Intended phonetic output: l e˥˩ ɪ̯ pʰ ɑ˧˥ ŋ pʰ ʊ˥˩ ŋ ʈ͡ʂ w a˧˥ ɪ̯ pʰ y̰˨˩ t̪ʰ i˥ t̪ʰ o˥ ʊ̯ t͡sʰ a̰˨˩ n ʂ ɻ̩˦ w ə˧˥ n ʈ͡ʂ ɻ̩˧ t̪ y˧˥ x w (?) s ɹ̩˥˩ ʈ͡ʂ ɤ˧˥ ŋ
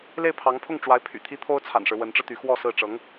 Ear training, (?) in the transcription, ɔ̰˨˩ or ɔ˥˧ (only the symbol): ɔ˥˧